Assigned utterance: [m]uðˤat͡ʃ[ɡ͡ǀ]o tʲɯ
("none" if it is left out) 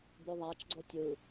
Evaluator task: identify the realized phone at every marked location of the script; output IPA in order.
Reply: b, ɡ͡ǀ

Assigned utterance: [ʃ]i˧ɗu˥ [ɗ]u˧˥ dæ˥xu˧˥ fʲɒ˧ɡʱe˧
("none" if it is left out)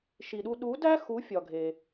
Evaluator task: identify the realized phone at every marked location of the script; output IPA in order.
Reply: ʃ, ɗ

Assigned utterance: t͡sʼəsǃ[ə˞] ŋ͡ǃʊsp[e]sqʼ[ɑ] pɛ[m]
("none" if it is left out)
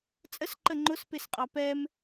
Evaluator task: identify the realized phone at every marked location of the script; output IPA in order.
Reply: ə, e, ɑ, m

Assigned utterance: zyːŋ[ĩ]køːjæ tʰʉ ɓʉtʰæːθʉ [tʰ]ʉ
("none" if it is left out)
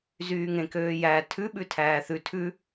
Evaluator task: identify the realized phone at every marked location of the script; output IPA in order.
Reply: ẽ, tʰ

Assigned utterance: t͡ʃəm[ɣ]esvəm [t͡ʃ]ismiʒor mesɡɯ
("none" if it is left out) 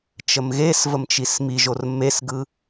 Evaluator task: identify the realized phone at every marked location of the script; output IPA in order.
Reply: ɣ, t͡ʃ

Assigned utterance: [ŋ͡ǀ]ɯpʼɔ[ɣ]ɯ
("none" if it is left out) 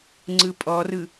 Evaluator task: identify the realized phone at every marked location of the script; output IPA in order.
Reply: ŋ͡ǀ, r

